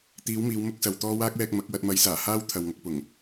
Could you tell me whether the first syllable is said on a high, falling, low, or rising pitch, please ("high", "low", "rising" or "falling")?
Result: rising